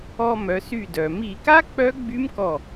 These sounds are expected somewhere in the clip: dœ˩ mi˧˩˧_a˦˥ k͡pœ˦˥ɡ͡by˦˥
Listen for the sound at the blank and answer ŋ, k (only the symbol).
k